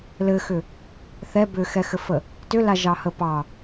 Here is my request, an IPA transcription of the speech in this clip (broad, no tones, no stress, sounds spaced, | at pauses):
l ɘ x ʏ | θ ɛ b ʏ x ɛ x ɘ f ə | t ʏ l a ʒ ɑ h ə p ɑ